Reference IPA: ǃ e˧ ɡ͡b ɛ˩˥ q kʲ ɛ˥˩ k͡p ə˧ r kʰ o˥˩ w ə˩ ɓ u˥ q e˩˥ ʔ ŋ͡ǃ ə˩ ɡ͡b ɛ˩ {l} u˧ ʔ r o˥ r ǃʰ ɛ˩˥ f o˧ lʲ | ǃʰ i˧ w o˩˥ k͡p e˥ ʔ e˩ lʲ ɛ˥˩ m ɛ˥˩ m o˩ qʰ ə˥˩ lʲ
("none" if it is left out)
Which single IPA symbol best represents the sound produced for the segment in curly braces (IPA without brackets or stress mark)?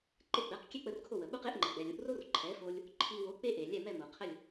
lʲ